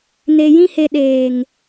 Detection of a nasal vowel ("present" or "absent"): present